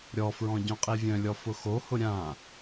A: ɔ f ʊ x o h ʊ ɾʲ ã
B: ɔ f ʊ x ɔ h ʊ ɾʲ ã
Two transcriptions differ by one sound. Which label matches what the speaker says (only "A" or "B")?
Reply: A